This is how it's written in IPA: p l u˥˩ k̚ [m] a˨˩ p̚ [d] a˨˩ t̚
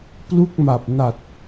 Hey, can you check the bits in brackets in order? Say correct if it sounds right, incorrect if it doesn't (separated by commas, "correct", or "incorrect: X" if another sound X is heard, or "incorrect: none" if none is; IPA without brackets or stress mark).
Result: correct, incorrect: n